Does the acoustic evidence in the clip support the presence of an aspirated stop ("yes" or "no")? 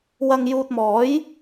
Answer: no